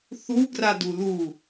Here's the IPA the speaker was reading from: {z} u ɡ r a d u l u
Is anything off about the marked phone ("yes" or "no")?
yes